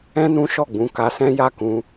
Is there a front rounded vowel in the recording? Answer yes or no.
no